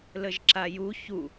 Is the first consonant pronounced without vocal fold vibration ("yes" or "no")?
no